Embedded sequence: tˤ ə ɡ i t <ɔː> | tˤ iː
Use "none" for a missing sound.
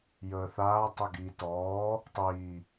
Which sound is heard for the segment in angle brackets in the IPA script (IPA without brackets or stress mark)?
ɔː